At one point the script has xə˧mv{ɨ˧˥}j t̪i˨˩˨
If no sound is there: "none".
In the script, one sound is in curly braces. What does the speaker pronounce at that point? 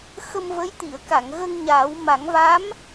ə˧˥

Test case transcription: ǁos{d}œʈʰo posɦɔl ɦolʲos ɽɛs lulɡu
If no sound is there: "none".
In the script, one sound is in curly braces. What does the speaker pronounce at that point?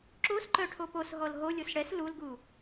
ǃ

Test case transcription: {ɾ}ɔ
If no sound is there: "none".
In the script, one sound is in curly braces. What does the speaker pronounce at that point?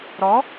ɾ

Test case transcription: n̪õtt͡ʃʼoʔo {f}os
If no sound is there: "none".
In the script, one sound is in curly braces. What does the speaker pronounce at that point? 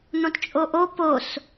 p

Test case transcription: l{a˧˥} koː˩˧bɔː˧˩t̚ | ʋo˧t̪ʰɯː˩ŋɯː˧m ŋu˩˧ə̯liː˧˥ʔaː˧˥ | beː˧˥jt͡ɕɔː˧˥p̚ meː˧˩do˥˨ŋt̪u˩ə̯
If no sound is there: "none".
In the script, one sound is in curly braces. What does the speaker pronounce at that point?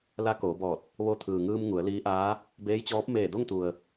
a˧˥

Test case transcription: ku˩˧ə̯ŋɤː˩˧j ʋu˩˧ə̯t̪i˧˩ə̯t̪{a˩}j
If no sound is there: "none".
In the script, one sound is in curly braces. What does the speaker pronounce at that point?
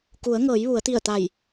a˧˩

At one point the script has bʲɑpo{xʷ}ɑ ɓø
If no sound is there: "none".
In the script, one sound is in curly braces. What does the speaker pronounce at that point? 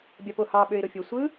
h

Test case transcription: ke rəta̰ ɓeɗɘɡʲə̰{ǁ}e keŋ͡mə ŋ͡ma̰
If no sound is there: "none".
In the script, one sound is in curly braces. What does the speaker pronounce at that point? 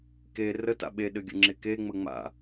ŋ͡ǁ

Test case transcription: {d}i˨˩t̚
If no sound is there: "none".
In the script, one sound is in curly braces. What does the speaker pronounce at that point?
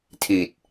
tʰ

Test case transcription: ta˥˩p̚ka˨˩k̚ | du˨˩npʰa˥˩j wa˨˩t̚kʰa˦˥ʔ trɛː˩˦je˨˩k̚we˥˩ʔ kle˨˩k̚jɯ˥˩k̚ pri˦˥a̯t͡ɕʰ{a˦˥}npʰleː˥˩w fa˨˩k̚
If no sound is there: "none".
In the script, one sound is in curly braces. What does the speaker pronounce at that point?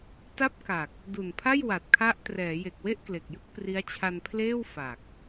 a˧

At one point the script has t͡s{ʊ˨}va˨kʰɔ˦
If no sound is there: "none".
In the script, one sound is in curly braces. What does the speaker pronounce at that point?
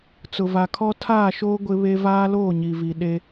ʊ˨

